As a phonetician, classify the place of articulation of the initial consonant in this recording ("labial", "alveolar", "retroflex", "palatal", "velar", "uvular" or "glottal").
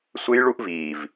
alveolar